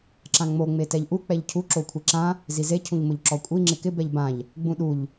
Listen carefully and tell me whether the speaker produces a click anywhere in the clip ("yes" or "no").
yes